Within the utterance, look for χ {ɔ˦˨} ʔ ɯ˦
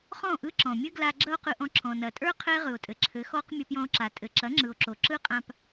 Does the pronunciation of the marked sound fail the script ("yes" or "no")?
yes